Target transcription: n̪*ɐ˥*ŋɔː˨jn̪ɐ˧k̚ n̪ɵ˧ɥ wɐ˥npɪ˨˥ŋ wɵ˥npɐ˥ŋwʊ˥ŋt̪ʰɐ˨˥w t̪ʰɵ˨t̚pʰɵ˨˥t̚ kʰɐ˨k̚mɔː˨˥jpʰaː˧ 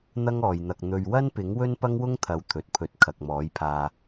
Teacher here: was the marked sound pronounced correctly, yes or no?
yes